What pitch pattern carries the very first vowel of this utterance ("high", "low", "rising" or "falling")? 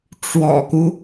low